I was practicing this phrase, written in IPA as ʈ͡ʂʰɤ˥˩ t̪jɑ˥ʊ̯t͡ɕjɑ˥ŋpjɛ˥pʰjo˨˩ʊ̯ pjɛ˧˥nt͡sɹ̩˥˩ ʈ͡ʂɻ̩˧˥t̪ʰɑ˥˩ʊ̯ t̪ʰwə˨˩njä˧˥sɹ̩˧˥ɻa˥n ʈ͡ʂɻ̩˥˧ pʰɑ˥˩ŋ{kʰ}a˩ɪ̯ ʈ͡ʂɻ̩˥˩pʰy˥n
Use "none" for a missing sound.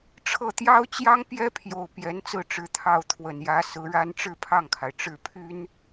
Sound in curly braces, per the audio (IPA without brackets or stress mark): kʰ